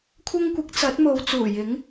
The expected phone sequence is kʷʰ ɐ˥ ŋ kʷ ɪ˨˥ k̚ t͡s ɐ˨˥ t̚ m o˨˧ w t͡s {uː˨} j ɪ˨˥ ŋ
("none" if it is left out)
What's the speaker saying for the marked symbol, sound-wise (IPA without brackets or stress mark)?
uː˨˩